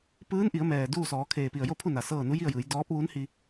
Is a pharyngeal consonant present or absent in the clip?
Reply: absent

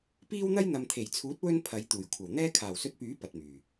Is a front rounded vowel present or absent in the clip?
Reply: present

